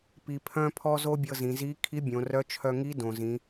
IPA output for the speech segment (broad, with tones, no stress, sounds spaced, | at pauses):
p i˧ pʰ œ̃˥ pʰ ɔ˥ z o˥ bʲ ɤ˧ z ĩ˩˧ z i˧˥ kʰ i˧˥ bʲ õ˩˧ r œ˧˥ t͡ʃʰ œ˧ ŋ i˧˥ d õ˩ z ĩ˩˧